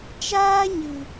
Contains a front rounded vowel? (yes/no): no